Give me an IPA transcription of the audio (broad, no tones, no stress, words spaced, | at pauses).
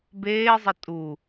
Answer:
beːzˤʌ tʼu